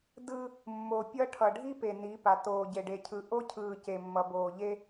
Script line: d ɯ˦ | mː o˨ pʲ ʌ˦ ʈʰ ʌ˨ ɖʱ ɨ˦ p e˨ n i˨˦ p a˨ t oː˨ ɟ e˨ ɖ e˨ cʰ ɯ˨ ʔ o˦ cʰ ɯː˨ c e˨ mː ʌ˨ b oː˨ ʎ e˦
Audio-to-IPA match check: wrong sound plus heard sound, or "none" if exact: ɨ˦ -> i˦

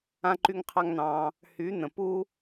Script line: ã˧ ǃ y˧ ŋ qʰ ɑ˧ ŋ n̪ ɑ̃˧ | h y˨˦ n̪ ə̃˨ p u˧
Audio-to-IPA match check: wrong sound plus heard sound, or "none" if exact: none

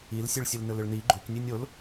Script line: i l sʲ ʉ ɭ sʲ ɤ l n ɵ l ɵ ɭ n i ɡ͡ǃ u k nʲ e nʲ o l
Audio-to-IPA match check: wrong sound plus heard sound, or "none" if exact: ɤ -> ɵ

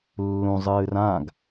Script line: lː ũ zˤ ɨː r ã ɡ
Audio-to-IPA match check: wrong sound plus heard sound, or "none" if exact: none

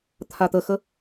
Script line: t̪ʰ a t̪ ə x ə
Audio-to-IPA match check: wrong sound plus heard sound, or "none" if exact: none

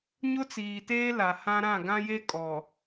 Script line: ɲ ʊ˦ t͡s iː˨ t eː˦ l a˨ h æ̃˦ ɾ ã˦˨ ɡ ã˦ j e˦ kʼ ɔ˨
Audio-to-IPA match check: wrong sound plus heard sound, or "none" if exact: æ̃˦ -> ã˦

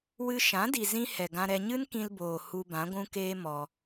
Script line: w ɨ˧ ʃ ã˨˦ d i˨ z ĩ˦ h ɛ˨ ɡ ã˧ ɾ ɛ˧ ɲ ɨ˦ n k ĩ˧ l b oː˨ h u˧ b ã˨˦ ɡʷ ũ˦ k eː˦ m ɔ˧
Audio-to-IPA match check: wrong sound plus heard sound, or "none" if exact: none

